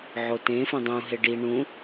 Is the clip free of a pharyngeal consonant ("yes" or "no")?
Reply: no